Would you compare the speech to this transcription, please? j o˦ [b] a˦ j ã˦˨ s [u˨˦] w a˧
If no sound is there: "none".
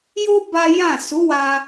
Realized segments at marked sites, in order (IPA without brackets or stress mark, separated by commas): b, u˨˦